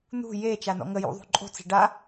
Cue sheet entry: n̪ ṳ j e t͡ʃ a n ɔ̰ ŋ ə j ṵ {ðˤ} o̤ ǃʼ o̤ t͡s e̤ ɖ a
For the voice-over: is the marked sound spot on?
yes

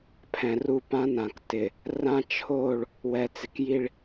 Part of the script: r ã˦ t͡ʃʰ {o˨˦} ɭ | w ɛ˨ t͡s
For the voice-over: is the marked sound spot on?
no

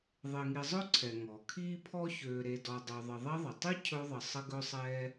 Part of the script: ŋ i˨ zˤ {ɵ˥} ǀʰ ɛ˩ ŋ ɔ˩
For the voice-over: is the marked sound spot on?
yes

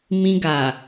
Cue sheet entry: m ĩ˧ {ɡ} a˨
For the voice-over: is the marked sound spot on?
yes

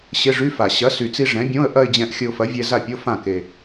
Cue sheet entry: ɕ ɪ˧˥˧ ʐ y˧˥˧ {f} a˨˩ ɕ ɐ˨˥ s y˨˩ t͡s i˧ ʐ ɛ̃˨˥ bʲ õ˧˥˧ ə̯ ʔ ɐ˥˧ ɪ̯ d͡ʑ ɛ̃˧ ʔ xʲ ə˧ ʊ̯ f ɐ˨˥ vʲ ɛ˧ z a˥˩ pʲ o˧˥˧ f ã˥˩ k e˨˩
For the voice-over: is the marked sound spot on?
yes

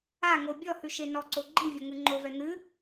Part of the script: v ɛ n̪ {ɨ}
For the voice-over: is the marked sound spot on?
yes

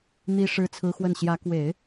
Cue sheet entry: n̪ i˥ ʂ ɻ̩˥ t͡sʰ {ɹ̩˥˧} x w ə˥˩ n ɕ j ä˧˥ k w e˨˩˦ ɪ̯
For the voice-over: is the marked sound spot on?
no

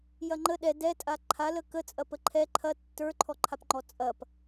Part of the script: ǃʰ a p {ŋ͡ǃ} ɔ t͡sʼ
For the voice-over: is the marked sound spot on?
yes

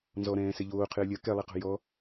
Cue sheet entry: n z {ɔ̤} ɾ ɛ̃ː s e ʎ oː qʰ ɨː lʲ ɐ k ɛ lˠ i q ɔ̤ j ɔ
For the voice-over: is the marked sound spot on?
no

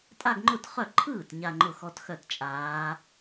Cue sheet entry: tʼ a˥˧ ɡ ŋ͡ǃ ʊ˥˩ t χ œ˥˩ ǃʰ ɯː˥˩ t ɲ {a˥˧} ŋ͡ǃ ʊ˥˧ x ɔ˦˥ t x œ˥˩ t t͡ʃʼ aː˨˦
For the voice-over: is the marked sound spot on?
yes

